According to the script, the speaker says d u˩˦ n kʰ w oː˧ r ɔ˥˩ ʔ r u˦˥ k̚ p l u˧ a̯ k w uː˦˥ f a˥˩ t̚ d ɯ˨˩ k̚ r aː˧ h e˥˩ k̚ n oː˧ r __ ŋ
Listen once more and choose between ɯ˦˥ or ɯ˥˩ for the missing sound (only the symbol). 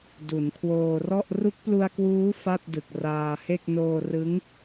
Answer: ɯ˦˥